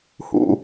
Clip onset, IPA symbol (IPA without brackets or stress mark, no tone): h